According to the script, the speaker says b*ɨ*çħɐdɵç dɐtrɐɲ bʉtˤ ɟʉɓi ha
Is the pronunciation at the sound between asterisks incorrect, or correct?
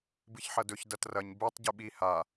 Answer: correct